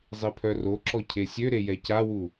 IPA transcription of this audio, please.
zˤ i pʰ œ r o ǁ ɔ cʰ e sʲ ø ɾ e j ɛ c a w u

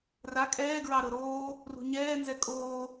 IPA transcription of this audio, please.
r a kʼ ɛː ɡ ɹ ɑ ɾ ɤ ɾ oː | r ṳ ɲ ɛː n z ɛ kʼ oː

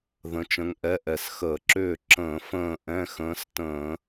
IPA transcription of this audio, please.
ð ə̃˨˦ t͡ʃ ə̃˨˦ ŋ ʔ ɛ˧˥˧ ʔ ɛ˨˩ s x əː˧˩˧ ǁ ʏː˥˨ ǁ ə̃ː˧˩˧ f ə̃ː˥˨ ʔ ɛ̃˧˥˧ x ə̃ː˨˦ s t ə̃ː˧˩˧

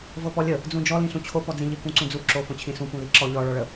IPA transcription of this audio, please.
v ɤ p ɔ lʲ ə | d͡z ũ d͡ʒ ɔ l ĩ ɬ ũ t͡ɕʰ o p ɔ d͡z ĩ ʎ ɨ k ũ ǀ ũ d͡z u ǁ o f õ t͡ɕʰ ĩ s ũ p ũ l i ǁ ɔ ʎ ɔ ɭ ɔ ɭ ə

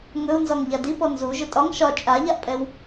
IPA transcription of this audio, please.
ŋ ɵ u̯ n z ɒ ŋ ʎ a d i p ɔ n z u ʒ ɵ tʼ ɒ ŋ ʃ ɒ t͡ʃʼ a ʎ a ʔ pʼ ɛ w

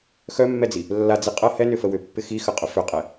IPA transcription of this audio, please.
x œ mː ɛ d͡z i | lː a d͡z i qʼ ɐ h ɛ n ʏ f ə w ʏ pː ɪ x i x ə qʼ ʊ f ʏ qʼ ɛ

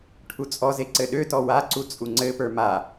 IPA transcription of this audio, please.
ʈʰ u t͡sʼ ɔ z e ǀ ɘ ɗ ø t ɔ w a ǀ u t͡sʼ u ŋ͡ǀ ɘ p ə˞ m a

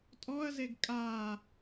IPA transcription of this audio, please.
tʼ ɔ ɐ̯ z e ɡ kʼ a

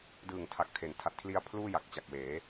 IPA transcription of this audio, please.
d ɯː˨˩ ŋ tʰ a˨˩ k̚ tʰ e˩˦ n tʰ a˨˩ t̚ kʰ l i˧ a̯ pʰ l uː˥˩ j a˨˩ k̚ t͡ɕ a˨˩ k̚ w eː˩˦

